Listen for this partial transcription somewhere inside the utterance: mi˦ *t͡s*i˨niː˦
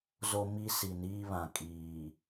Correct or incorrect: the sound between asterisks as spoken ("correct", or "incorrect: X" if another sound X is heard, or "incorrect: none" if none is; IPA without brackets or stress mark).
incorrect: s